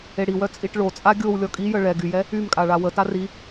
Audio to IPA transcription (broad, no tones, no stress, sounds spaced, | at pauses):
e ɽ i w œ t͡sʼ i ʈ ɭ o t͡sʼ a ɡʲ o w lʲ ɔ kʼ i j ə ɭ ɛ ɡ y j ɛ | y m kʼ a ɭ a w ə t a r i